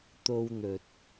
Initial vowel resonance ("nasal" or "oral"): oral